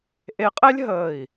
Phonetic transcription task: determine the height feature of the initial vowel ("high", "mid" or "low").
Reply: mid